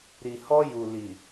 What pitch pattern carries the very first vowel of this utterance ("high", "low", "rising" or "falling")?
low